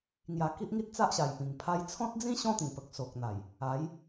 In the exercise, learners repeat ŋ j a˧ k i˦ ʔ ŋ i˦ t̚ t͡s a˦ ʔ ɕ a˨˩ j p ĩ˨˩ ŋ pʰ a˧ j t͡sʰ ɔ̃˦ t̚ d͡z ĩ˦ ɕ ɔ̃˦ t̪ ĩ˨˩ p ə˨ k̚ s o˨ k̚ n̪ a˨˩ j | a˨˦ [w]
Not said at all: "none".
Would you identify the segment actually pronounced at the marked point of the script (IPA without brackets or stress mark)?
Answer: j